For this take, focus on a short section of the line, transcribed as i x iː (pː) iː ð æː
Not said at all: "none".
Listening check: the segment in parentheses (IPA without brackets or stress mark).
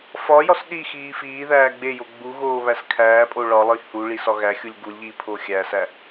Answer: f